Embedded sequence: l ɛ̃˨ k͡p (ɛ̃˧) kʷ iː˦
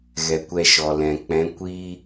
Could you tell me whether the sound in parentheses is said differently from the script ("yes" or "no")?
yes